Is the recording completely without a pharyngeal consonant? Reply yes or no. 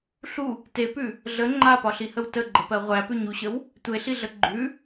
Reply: yes